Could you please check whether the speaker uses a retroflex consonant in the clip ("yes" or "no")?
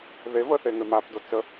no